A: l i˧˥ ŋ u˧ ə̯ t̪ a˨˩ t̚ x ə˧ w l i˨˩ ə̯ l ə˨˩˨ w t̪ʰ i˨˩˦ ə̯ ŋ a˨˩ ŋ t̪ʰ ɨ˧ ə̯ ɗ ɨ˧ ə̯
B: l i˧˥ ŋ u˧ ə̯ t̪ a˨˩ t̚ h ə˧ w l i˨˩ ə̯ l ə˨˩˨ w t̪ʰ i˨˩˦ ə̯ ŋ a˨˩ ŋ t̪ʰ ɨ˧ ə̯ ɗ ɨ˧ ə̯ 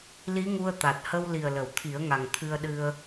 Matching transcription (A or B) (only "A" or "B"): B